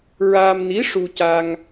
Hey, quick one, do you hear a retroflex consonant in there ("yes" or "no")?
yes